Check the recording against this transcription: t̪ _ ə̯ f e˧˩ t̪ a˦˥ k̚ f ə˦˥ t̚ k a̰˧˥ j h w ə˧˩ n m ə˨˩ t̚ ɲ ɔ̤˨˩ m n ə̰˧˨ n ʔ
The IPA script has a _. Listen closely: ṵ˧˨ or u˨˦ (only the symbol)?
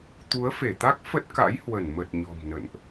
u˨˦